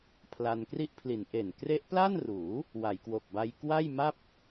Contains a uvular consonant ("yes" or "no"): no